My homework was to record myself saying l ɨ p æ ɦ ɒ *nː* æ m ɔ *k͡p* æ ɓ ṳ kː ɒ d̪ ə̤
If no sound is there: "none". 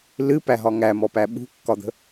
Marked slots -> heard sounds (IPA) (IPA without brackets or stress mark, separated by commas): ŋ, p